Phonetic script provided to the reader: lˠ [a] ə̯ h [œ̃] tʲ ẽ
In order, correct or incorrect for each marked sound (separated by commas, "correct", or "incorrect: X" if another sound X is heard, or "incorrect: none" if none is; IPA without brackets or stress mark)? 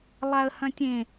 correct, correct